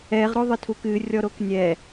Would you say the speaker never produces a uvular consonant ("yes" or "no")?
no